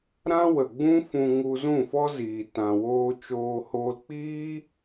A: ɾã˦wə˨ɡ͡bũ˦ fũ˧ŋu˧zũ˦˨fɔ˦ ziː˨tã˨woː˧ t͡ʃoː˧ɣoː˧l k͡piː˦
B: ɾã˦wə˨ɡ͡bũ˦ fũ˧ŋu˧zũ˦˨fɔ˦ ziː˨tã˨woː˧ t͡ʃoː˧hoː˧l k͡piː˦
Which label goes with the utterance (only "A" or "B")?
B